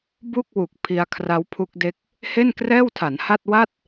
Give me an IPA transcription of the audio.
b u˥˩ k̚ w u˨˩ k̚ pʰ i˧ a̯ kʰ r a˦˥ w pʰ u˦˥ k̚ d e˦˥ k̚ | h e˥˩ n k r ɛː˥˩ w tʰ a˩˦ n h a˥˩ t̚ w a˥˩ t̚

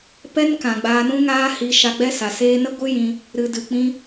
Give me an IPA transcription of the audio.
p ɛ˦ n k ã˨ ɡ͡b aː˧ n ũ˦ ŋ aː˦ h i˧ ʃ a˧ ɡ͡b ɛ˦ s a˨ s eː˧ n ə˦ ɡʷ ɨ˦ j ĩ˧ | ɾ ɨ˨ d ɨ˨ k͡p ĩ˧

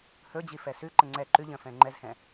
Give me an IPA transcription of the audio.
h ɵ d͡ʑ i f ɛ s ʉ ǃ ə ŋ͡ǀ ɛ ǃ ʉ ʎ ə̃ f ɛ̃ ŋ͡ǃ ɛ z h ɛ̃

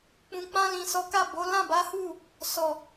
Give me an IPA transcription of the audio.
k͡p ũ˨ k͡p ã˧ l ĩ˨ s ɔ˨˦ k a˦˨ b o˨˦ l ã˦˨ b a˨˦ h u˦˨ | s ɔ˨

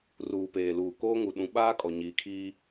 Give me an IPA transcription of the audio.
r uː˨ p eː˨ l uː˨ k oː˦ ŋ u˨ ɗ ũ˨˦ ɓ aː˦ kʼ ɔ˨ ɲ iː˨ kʰ iː˦

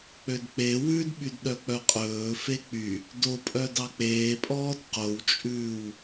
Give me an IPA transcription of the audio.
k͡p ø d k͡p e w ʉ d ɓ y d ɗ œ k͡p œ qʼ ɵː f e k͡p y | d o pʼ œ d ɑ k͡p eː pʼ ɔː d q o w t͡ʃʼ ʉː w

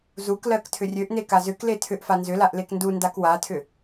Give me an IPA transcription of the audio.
z u k l ɜ k tʰ ʏ rʲ ø ʔ n e k a z ʏ k l e tʰ ʏ ʔ f a n z ʏ l a ʔ l e k n d u n d a k w a tʰ ʏ

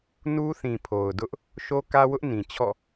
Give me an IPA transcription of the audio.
n u˦ θ ĩ˨ pʰ o˨ ʊ̯ d ʊ˦ ʔ | ʃ o˦ k ä˦ w ʊ˦ ʔ n ĩ˨ t͡ɕʰ ɔ̰˦˨

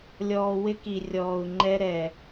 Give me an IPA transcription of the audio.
lʲ ɔː˨ w ɪ˦ k i˨ rʲ ɔː˨ u̯ ŋ͡ǃ ɛ˦ ɾ ɛ˨

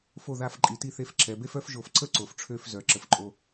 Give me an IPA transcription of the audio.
f o˧˩ ð a˧˩ f ǃʼ i˩˧ t i˧ θ e˧ f ǁ ɛ˩˧ b e˥ f œ˥ f ʒ o˧˩ f ǀ ə˥ ǀ o˩˧ f ʈ͡ʂʰ ø˥˧ f z œ˩˧ ǁ ə˩˧ f ǃʼ o˧

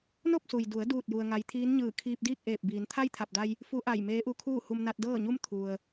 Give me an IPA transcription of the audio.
n o˥˨ p̚ s u˩ j d u˩˧ ə̯ d uː˥˨ t̚ j u˧ ə̯ ŋ a˧˥ j t̪ʰ iː˧˥ n ɲ ɯː˧˩ kʰ iː˧ p̚ d iː˥˨ k̚ ʔ eː˧˩ p̚ b iː˩˧ n t̪ʰ a˥˨ j t̪ʰ a˧˩ p̚ d a˧ j | f u˧˥ ʔ a˧˩ j m eː˧˥ ʔ u˧˥ kʰ uː˥˨ h u˧ m n a˧ t̚ d ɤː˥˨ ɲ u˥˨ m t̪ʰ u˩ ə̯

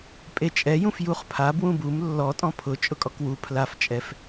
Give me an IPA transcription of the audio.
pʼ e t͡ʃʼ ɛ j ũ f j u χ pʰ a b w ũ b u m lː ɔ tʼ ɔ̃ pʰ ʊ t͡ʃʼ ʊ kʼ ɔ k w u pʰ l a f t͡ʃʼ ɛ f

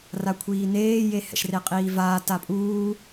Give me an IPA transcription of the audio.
r a kʷʰ iː n eː j e h ɛ̰ ʃ r e qʼ iː v aː t a pʼ uː

